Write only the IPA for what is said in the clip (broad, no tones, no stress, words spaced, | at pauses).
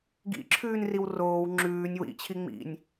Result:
ɡḭǁʰʉːn riwroːw ŋ͡ǁʉːnʲ wḭ t͡ɕʰiŋ͡mḭnʲ